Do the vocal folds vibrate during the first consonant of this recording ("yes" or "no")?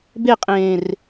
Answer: yes